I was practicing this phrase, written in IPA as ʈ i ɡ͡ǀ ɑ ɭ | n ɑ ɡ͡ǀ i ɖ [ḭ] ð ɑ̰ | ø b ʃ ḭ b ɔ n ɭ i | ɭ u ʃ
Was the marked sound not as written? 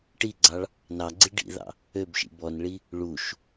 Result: no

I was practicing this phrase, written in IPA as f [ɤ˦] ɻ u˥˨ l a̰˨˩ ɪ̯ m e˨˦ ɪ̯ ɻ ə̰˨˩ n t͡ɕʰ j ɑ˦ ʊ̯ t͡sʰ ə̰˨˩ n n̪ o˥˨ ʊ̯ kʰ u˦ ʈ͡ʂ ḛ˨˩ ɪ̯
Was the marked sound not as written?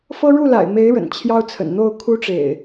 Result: no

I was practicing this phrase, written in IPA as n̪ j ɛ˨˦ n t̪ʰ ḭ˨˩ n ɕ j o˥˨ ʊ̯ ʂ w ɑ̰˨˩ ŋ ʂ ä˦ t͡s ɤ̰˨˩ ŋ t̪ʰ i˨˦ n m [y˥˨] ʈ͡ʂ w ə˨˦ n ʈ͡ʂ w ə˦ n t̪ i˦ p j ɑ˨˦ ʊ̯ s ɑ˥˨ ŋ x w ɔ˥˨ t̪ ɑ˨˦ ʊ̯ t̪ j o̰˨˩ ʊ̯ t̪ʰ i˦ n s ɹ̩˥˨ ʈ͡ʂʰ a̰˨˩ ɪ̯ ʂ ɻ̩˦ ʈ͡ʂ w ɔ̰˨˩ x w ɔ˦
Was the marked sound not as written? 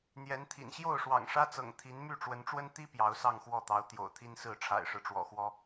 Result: no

